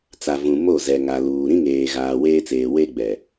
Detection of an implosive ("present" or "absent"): absent